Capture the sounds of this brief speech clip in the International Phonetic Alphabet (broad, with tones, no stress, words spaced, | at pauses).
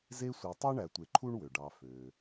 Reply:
ze˦sʷe˨tˤø˥ ɳæ˨tʷe˨ǃʰu˥ɳ wø˩ɖɑ˨ fø˩